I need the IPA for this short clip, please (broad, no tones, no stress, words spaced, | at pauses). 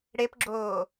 ɽepɡ͡ǁoː